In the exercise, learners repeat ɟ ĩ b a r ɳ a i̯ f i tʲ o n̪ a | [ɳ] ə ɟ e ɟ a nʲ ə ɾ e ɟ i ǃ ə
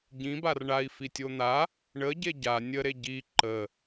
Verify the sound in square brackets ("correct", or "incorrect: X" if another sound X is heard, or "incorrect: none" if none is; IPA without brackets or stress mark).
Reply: correct